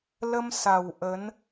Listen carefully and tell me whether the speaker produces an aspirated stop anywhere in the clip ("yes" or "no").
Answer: no